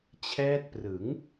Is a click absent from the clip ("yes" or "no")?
yes